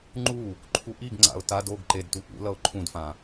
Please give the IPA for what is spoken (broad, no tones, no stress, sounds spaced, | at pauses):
ŋ͡ǃ u | ǃʰ u ʔ i ɡ ŋ͡ǀ a̰ ʊ̯ t a d o ɡ ǃ e d t u ʔ ṵ l ʌ ʊ̯ ǃʰ ũ d f ã